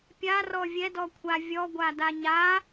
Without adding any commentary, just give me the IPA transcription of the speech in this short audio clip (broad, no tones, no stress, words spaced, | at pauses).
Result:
pʲarɔ vʲɛdɔkʷʰa vʲɔɡʷada ɲa